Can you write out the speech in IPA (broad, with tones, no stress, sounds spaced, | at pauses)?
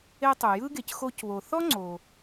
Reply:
e˦ tˤ u˩ j ɯ˥ ɡ e˨ c x o˦ c β o˨ θ ɔ˥ ŋ͡ǀ o˨